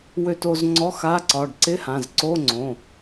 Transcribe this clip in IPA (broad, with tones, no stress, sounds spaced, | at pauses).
w ø˧ t o˧ z ŋ͡ǀ ɔ˧˥˧ x a˧˥˧ ǀ ɒ˩˧˩ ɖ ǀ ɪ˧˥˧ h ã˩˧˩ z ǀ o˧˥˧ ŋ͡ǀ õ˩˧˩